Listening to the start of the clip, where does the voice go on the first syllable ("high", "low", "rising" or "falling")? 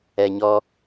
low